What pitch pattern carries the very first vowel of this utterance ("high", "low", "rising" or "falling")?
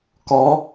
rising